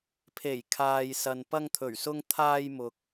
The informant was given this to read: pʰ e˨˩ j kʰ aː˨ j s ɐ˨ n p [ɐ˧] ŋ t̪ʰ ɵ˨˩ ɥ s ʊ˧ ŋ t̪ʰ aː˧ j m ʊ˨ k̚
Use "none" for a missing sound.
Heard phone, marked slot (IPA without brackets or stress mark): ɐ˧